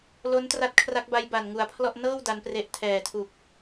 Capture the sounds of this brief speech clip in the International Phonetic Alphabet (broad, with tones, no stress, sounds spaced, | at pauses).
l o˦˥ n t r a˦˥ t̚ kʰ r a˦˥ k̚ b a˦˥ j b a˨˩ n ŋ u˨˩ a̯ pʰ l ɔ˥˩ ʔ n ɤː˥˩ w d a˦˥ n p r e˦˥ ʔ tʰ ɛː˨˩ tʰ u˨˩ k̚